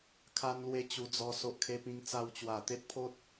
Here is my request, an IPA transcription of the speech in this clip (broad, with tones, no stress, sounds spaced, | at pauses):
kʰ a˦ n l w e˦ t͡ɕ u˧ d͡z ɔ˧ s o˦ ʔ kʰ e˦ p ĩ˦ ŋ t͡s a˧ w t͡ɕ w a˨˩ t̪ e˦ t̚ pʰ o˦ t̚